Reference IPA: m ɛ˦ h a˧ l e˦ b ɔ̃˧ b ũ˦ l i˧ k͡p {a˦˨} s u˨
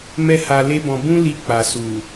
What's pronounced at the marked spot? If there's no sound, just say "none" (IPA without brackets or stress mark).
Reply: a˨